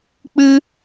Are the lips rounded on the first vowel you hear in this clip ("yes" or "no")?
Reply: no